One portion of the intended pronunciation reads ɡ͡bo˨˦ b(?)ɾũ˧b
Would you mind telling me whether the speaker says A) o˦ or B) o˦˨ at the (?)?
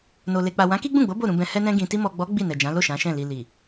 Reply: B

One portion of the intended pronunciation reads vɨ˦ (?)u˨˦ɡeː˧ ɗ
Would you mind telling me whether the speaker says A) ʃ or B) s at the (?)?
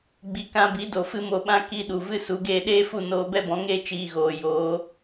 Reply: B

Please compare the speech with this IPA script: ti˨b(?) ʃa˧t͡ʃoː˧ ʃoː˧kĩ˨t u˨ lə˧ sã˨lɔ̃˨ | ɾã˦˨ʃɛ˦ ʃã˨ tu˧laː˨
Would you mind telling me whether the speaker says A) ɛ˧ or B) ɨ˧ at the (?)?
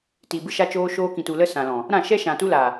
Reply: B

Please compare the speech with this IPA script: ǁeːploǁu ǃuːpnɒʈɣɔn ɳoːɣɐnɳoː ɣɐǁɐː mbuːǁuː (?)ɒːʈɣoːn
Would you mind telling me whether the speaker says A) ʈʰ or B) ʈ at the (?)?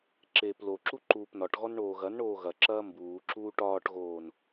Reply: B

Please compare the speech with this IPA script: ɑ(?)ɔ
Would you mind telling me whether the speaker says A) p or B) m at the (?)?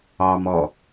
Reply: B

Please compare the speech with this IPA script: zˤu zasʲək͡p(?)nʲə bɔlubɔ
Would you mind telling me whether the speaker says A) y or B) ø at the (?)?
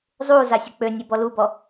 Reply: B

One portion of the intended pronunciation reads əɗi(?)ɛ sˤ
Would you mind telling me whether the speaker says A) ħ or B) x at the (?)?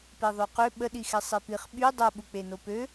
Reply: B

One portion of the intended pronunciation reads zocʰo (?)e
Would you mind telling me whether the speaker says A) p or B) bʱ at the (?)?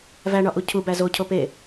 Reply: A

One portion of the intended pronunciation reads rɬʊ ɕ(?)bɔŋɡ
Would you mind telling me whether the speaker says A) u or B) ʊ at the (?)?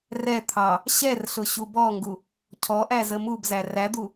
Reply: A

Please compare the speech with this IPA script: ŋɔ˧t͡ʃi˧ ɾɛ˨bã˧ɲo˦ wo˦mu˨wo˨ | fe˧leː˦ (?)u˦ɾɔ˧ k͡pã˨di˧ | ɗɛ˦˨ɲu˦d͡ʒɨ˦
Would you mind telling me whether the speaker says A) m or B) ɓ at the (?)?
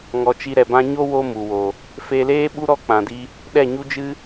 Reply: B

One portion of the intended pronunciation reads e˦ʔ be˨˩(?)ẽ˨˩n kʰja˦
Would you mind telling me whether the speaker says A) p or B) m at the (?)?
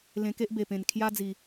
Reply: A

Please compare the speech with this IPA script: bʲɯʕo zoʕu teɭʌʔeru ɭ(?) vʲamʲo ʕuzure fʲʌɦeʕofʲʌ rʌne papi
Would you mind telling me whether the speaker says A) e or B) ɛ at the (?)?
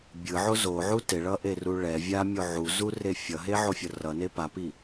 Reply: B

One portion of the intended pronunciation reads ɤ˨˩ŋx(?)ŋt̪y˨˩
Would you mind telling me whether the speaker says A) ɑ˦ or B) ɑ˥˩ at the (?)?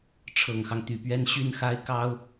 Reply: A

